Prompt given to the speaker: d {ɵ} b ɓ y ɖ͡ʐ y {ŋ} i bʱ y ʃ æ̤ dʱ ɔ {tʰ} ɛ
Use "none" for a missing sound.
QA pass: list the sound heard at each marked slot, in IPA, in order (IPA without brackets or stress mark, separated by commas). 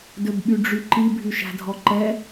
ɵ, ǃ, ǃ